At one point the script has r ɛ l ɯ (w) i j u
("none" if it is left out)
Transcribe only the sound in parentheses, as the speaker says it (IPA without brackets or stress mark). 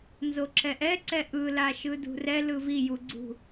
v